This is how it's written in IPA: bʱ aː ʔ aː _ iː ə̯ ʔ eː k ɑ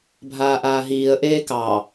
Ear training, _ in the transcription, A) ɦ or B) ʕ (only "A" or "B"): A